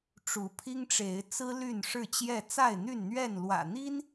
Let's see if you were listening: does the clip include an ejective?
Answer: no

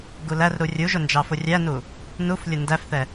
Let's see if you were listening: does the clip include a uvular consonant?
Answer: no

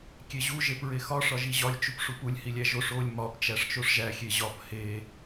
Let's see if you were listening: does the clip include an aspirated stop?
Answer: no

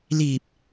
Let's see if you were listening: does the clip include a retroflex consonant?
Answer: no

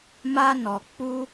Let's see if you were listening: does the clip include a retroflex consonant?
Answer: no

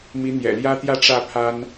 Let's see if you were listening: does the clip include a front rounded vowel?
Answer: no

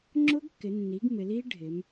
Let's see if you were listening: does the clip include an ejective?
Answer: no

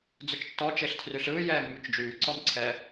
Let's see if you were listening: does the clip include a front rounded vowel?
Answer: yes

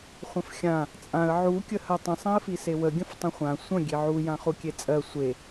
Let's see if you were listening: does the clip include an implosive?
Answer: no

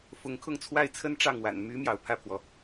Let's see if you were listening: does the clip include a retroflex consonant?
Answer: yes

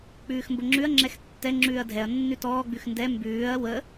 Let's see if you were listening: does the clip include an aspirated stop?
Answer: no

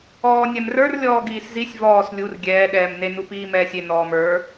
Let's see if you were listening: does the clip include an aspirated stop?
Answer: no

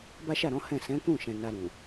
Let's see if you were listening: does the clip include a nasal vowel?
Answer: yes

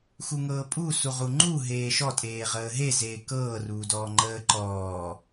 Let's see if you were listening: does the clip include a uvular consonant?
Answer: yes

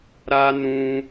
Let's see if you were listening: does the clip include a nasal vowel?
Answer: yes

